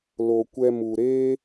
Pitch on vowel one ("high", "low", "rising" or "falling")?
low